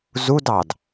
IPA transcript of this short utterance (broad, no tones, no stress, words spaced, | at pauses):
zudɑd